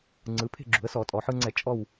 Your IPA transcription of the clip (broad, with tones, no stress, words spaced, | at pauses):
ŋ͡ǀɯ˩˧ pʰe̤˥˨ɡ͡ǁṳ˩˧ə̯sɔ˧˩˧tʼɔ˩˧ ħɯ˧ŋ͡ǀɛ˧˩˧ t͡ʃʼɔ˥˨w